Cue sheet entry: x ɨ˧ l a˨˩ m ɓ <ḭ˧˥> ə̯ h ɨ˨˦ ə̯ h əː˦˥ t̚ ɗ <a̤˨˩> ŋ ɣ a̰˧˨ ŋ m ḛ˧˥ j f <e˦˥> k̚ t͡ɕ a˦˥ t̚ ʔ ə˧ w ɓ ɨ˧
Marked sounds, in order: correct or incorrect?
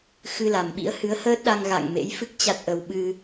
correct, incorrect, incorrect

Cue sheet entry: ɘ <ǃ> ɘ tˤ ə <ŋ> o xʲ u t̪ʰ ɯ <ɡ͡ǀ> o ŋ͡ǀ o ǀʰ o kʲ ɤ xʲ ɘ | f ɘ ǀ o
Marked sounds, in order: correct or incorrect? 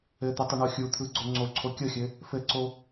incorrect, incorrect, correct

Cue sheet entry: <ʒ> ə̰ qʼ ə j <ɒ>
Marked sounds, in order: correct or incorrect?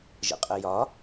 correct, correct

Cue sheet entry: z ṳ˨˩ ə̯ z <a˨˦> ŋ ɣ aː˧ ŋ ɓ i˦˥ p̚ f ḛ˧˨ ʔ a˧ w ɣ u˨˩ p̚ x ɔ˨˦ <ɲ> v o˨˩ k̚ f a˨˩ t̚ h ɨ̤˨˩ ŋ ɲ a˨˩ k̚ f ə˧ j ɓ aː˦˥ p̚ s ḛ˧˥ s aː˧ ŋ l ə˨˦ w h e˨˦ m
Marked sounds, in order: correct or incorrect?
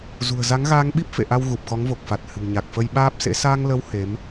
correct, incorrect

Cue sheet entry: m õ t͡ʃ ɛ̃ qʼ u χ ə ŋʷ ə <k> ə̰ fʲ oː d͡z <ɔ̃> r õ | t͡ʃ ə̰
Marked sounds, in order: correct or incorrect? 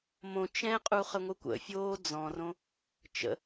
incorrect, correct

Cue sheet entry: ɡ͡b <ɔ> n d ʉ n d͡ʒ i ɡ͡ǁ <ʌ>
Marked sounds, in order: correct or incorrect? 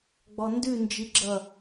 correct, correct

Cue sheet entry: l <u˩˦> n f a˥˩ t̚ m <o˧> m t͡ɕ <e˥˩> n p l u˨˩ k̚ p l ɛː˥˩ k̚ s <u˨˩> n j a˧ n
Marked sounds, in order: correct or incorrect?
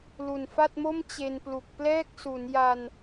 incorrect, incorrect, incorrect, incorrect

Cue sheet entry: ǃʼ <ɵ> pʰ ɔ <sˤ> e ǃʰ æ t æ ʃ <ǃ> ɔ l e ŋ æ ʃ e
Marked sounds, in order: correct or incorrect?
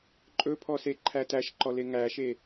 correct, incorrect, correct

